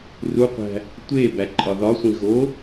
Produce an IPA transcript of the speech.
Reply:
ruqʷæ̤ | tʷe bæǃʼɒðɒsʷĩ ɣo

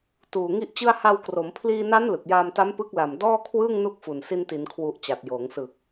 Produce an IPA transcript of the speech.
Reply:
tuː˨˩ ŋi˥˩ʔt͡ɕɯ˥˩a̯ ha˧wkro˩˦m pʰliː˧na˦˥n lɯ˨˩k̚jaː˧mta˦˥m pɯ˦˥k̚la˨˩m dɔː˥˩kʰwɯː˥˩ŋnu˦˥k̚fu˨˩n si˧nti˩˦nkʰwu˨˩ʔ t͡ɕa˨˩t̚joː˩˦ŋsɯ˨˩k̚

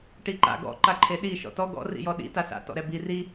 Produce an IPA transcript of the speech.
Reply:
ʈiǃa̰ ɡɔ̰ ǃaǃʰeɗi ʃɔ̰tɔ ɡɔ̰ rḭjɔɗḭ tasa̰ tɔ̰ɾɛbi ri

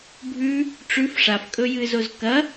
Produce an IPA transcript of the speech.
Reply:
bʱʉ | ʈ͡ʂʉf ʂafkʼɵjɨːzoz kɐ

